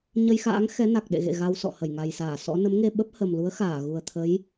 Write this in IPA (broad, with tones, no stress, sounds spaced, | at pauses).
ɲ ə˧ j x a̰ː˧˥ ŋ x ɛ˨˦ n a˨˩ k̚ ɗ ḛ˧˨ ɣ ḛ˧˨ ɣ a˧ w s ɔ̰˧˨ h ə˧˩ j ŋ a˨˩ j s aː˧˩ s ɔ̰˧˥ n ə˨˦ m ŋ e˧ ɓ ə˦˥ p̚ h ə˨˩ m l u˨˦ ə̯ x aː˧˩ ɣ u˨˩ ə̯ t̪ʰ ə˨˦ j